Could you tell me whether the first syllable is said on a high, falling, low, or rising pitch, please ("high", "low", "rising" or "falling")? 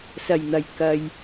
low